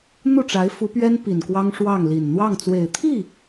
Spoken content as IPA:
n̪ u˥˩ ʈ͡ʂ a˧˥ ɪ̯ f u˧˥ p ɥ ɛ˥ n p i˨˩ n k w ɑ˥ ŋ ʂ w ɑ˥˩ ŋ l i˨˩ n n̪ w ɑ˥˩ ŋ t͡s w e˨˩ ɪ̯ t̪ʰ i˥˩

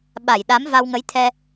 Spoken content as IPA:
ɓ a˧˩ j ɗ a˨˦ m v a˧ w ŋ ə˨˦ j t̪ʰ ɛ˧

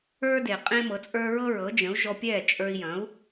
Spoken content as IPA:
ə˞˥ d e˩ qʼ ẽ˥ m ɤ˩˥ t͡sʼ ə˞˥ ɹ ɤ˥ ɹ ɤ˩˥ d͡ʒ ə̃˩˥ u̯ ʒ ɔ˧ pʲ ɛ˥˩ t͡ʃʼ ə˞˧ i̯ j ɐ̃˩˥ u̯

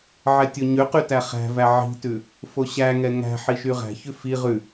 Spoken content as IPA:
ʕ ɛ tʲ o ɲ ø q y t æ χ æ̤ v æ ʕ i̤ t ʉ | f o ɕ æ ŋ ɛ ŋ æ̤ ħ i ʃ y ʁ æ̤ ç ʉ f i ʁ ʉ

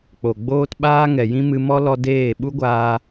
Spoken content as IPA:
k͡p o˨ ɡ͡b oː˦ t ɓ aː˦ ŋ ɛ˨ j ĩ˦ m ɨ˧ m ɔ˦ l ɔ˧ d eː˦˨ ɓ u˦ ɡʷ aː˧

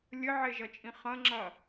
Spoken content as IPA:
lʲ ɘ ʕ e ʒ ɐ t͡ʃʼ ĩ χ ɐ̃ ŋ͡ǁ ɐ

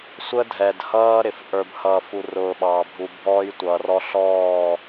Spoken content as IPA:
sʷ ə˦ dʱ ɛ˨ d h ʌː˦ ɾ ɪ˨ f ʔ ə˞˨ b h ʌː˨ f u˨ r ʊː˨ ɓ ɑː˨ bʱ u˨ bʱ ɔː˦ j tʷ ʌː˨ r ɔ˦ ɬ ɔː˦˨

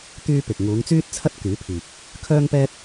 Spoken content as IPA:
t̪ yː˧ p ɪ˨ k̚ ŋ uː˨˧ ŋ t͡s yː˥ t̚ t͡sʰ ɐ˥ t̚ k yː˨˥ pʰ iː˨ k̚ | kʰ œː˥ ŋ p ɛː˥ t̚

